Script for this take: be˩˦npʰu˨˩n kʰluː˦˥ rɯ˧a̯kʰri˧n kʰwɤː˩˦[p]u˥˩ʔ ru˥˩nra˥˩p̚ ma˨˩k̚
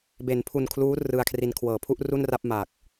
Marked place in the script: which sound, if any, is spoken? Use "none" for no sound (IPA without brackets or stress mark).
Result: pʰ